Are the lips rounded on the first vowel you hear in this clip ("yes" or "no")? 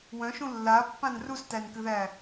yes